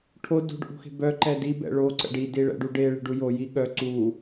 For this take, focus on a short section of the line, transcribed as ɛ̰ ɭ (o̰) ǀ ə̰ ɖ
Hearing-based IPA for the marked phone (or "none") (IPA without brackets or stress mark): o